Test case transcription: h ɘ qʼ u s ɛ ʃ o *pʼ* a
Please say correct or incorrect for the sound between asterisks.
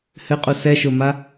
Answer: incorrect